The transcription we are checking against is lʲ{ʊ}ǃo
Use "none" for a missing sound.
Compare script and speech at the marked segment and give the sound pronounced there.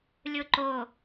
ʊ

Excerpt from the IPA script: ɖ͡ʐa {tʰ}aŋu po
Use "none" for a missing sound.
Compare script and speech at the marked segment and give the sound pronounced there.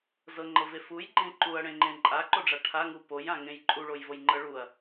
ʈʰ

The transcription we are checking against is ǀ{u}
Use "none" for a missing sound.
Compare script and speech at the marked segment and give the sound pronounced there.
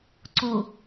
u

